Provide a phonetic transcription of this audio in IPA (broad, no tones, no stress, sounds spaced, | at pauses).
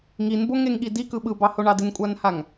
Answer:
ŋ i n b o ŋ e ŋ ɠ i d i k ɯ ɓ ɯ b ɑ h o ɳ ɑ d ɪ n kʷʼ a n h a ŋ